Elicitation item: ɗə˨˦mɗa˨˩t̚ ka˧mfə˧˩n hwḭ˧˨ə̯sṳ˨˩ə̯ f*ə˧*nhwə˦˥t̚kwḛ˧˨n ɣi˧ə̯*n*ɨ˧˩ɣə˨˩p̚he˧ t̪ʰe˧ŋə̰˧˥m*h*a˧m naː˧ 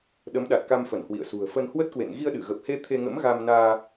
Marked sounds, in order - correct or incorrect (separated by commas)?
correct, incorrect, incorrect